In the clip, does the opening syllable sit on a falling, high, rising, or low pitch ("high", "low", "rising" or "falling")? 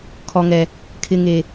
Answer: low